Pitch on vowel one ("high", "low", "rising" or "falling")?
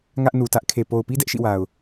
high